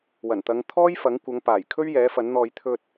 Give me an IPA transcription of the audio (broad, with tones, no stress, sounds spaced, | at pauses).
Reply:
w ɐ˨˩ n t̪ ɐ˨˧ ŋ t̪ʰ ɔː˥ j f ɐ˨˥ ŋ kʷ ɐ˨˧ ŋ p aː˨˩ j kʰ ɵ˥ ɥ j ɛː˨˥ f ɐ˨˥ n n̪ ɔː˧ j t̪ʰ ɵ˧ t̚